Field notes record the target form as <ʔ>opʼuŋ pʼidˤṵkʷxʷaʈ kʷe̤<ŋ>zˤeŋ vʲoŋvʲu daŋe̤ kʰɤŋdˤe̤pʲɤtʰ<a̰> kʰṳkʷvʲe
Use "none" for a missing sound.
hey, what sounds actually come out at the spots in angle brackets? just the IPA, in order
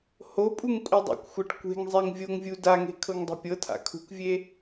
h, ŋ, a̰

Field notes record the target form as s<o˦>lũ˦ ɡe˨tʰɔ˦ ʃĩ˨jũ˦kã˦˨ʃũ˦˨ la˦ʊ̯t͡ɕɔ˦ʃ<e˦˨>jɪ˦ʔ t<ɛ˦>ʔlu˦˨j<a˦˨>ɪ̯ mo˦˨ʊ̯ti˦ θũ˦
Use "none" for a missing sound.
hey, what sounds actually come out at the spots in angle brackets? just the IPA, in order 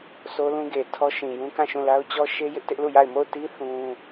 o˦, e˦, ɪ˦, a˦˨

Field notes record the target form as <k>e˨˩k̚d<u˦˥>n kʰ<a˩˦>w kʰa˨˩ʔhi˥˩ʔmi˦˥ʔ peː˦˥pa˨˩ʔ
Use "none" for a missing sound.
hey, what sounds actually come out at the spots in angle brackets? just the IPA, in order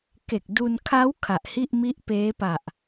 k, u˧, a˦˥

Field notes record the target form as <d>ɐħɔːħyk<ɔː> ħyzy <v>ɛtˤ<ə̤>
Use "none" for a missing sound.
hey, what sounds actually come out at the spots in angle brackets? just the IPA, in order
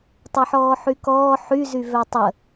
tˤ, ɔː, v, ə

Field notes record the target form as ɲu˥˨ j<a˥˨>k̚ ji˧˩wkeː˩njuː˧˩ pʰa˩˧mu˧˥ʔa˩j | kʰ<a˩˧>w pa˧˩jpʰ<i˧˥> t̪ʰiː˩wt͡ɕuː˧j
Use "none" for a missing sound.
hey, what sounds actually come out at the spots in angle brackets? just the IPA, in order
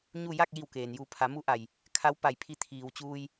a˥˨, a˧˥, i˧

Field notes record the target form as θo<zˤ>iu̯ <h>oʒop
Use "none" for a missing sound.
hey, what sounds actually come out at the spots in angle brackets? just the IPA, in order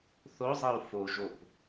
zˤ, f

